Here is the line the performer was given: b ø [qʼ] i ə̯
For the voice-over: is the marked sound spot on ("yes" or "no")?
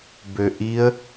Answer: no